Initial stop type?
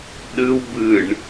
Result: implosive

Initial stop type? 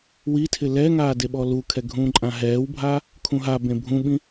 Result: aspirated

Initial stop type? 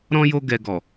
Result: plain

